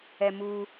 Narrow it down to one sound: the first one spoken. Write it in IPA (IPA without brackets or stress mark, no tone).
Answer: ɛ